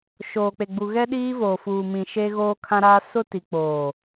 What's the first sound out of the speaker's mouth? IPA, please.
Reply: ʃ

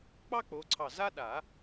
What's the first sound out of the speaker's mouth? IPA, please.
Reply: k͡p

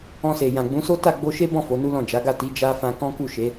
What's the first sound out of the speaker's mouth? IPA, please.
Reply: ɔ̃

